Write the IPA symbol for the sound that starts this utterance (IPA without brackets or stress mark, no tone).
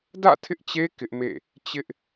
d